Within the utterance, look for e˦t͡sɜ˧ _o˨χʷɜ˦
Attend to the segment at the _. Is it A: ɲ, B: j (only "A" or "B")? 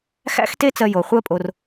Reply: B